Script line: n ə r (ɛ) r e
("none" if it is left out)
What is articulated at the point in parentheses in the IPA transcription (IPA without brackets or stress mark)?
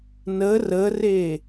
ə